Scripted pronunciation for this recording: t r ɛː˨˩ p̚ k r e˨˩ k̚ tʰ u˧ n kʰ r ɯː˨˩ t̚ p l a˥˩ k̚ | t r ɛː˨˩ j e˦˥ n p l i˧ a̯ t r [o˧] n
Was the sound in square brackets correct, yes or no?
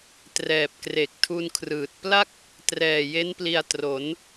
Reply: no